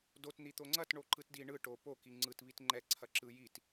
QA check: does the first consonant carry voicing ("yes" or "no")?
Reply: yes